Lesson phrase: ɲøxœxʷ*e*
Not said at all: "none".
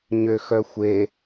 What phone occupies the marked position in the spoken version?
e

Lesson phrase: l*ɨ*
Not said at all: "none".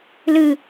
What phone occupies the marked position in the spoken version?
ɨ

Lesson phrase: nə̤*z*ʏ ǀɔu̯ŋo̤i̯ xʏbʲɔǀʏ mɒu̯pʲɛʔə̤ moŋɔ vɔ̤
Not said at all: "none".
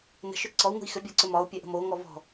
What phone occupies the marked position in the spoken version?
ʃ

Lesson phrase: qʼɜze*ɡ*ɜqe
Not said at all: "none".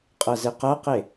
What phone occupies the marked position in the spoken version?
q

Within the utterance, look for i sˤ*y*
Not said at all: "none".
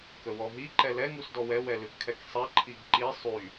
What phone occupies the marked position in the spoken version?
y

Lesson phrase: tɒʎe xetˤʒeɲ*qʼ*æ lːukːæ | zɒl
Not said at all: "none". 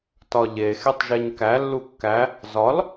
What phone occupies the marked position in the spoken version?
k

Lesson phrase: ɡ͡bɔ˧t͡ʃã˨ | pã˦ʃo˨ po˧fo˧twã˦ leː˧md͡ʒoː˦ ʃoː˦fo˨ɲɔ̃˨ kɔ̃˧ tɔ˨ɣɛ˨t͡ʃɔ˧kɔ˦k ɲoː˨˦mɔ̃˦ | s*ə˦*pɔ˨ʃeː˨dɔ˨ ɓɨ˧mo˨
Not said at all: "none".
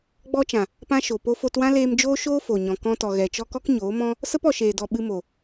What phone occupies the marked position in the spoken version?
ə˦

